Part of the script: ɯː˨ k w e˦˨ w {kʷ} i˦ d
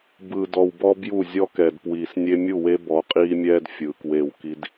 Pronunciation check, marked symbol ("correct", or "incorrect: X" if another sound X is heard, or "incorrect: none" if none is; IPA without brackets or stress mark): incorrect: k